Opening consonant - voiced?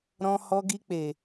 yes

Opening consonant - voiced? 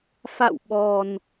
no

